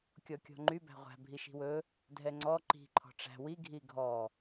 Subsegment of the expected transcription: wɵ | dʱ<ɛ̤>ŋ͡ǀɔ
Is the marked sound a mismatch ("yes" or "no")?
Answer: yes